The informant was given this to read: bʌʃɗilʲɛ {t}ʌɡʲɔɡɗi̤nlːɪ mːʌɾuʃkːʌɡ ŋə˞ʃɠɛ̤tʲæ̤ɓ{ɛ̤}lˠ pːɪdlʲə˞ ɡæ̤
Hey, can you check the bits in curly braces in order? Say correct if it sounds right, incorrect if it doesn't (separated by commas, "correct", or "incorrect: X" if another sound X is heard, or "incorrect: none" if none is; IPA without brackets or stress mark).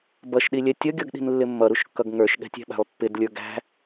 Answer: incorrect: tʲ, incorrect: æ̤